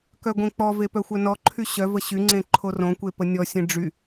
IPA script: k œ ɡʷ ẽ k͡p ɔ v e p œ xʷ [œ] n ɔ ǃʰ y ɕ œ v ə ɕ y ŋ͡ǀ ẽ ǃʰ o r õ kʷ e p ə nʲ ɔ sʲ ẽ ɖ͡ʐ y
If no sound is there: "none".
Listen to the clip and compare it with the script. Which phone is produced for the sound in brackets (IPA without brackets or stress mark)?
œ